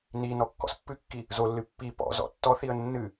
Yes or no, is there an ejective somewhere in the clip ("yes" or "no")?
no